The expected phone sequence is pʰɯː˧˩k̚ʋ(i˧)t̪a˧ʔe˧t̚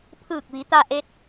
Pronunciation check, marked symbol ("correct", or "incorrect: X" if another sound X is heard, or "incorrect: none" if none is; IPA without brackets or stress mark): incorrect: i˩˧